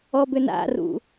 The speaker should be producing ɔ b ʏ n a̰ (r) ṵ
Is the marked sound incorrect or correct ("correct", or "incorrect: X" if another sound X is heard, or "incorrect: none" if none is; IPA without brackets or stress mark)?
correct